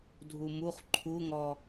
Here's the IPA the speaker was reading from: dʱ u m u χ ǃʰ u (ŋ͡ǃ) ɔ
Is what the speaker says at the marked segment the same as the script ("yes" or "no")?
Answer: no